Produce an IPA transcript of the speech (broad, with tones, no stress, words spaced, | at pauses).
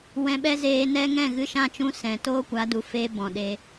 wɛ̃˧ ɓɛ˦zeː˧nɛ˦ ŋɛ̃˦˨ɣɨ˧ʃã˦˨t͡ʃũ˧ sɛ̃˨ toː˦kʷa˨˦du˨feː˧ bɔ̃˨ɗe˧